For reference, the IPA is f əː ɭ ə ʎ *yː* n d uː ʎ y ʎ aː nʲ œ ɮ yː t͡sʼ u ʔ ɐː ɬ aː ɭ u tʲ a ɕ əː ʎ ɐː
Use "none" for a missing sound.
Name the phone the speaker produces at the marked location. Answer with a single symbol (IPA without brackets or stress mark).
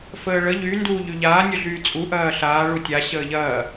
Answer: y